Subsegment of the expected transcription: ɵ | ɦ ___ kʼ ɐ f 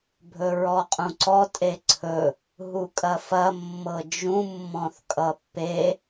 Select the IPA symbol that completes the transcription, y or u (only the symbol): u